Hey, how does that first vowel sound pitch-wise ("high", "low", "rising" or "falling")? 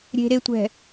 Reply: low